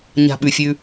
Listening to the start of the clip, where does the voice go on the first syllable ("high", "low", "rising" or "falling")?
low